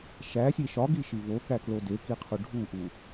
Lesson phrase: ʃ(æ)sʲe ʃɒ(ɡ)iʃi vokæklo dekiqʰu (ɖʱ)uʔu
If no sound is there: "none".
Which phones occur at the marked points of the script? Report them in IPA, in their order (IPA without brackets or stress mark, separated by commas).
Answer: æ, ɡ, ɖʱ